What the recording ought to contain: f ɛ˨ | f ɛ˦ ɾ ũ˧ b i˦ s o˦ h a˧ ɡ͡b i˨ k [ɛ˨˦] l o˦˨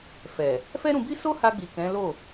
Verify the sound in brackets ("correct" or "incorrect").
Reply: incorrect